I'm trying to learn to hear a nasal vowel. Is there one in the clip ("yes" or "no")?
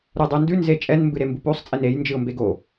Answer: no